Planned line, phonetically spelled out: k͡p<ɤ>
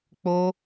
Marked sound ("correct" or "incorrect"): incorrect